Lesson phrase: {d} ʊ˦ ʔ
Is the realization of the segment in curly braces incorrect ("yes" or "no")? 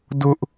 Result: no